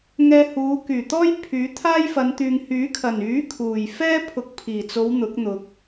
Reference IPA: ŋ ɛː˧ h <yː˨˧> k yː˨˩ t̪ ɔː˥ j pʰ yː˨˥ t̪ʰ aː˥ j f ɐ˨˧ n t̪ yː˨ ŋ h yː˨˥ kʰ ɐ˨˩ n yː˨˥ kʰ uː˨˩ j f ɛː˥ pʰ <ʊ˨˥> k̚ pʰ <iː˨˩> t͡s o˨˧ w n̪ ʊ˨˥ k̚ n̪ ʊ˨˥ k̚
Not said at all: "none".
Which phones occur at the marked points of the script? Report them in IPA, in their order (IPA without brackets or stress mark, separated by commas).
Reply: uː˨˧, ʊ˨˥, iː˨˩